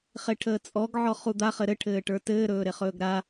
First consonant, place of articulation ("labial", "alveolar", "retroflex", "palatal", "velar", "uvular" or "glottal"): uvular